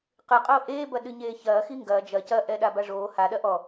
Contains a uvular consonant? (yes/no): yes